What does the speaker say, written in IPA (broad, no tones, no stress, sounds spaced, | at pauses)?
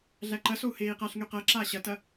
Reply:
ɮ æ ǃ ɐ s o u̯ h eː i̯ q a ɬ ŋ y q ɐ ǁ aː ɕ ɐ t ɐ